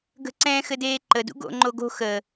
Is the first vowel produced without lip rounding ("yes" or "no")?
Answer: yes